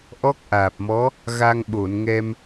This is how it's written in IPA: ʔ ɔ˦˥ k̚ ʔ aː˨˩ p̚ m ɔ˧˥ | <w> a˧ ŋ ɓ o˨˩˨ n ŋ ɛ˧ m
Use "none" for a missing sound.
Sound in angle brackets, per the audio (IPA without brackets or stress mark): ɣ